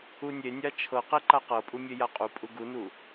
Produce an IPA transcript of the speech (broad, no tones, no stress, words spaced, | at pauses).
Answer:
unʲenʲa t͡ʃʰɤqe ǃaqɤpʼu mʲejaqʼupʼu ɡunu